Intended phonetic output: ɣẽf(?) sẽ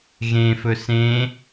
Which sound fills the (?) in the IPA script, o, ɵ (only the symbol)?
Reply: ɵ